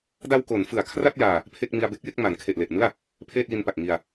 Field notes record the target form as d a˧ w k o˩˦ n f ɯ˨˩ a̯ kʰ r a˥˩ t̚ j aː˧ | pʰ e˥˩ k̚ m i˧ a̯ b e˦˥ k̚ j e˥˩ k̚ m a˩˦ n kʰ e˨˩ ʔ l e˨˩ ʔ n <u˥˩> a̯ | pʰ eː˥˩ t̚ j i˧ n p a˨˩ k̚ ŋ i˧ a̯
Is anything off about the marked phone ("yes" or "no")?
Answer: yes